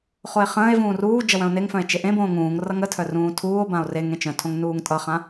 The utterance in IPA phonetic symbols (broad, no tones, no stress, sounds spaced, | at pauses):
χ o e̯ χ ə̃ː e̯ v ũː r uː d͡ʒ ʌ w œ̃ o̯ n e ŋ f œ̃ e̯ t͡ʃ e ʔ ẽ b õː ŋ ũː ŋ r ʌ ŋ ə tʰ œ r ũː tʰ uː o̯ b ã o̯ r e ŋ ẽ t͡ʃ œ̃ tʰ õ ŋ n uː ŋ tʼ ʌ χ ã